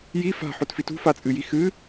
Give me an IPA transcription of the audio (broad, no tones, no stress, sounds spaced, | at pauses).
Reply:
j i f a̤ ħ o t f i t ṳ f a t͡sʼ ɨ j i x ɨ